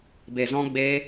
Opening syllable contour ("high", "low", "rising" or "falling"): low